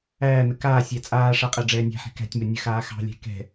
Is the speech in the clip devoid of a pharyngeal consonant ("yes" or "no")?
no